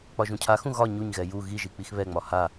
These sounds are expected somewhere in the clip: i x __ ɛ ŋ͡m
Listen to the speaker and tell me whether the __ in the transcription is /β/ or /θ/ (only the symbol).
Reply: β